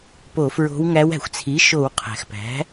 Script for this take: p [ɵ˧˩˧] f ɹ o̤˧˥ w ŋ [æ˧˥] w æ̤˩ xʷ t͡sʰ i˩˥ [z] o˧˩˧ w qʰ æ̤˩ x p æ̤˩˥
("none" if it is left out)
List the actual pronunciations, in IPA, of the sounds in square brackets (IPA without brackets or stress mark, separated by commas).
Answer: o˧˩˧, æ˧˥, ʃ